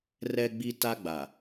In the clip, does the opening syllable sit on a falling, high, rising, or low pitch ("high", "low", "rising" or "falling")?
high